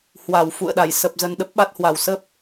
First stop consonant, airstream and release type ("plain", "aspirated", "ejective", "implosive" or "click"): implosive